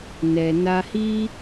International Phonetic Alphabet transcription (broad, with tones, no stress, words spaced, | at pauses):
nɛ˨ na˧hi˦